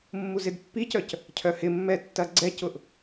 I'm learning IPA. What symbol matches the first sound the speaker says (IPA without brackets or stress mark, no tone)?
mː